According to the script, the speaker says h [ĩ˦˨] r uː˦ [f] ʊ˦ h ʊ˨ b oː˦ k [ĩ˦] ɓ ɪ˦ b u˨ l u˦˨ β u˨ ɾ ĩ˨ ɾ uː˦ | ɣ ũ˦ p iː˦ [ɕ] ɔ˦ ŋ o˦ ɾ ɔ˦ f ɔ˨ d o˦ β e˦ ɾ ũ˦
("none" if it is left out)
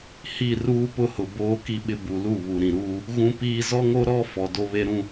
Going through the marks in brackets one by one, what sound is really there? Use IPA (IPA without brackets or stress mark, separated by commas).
i˦˨, p, i˦, z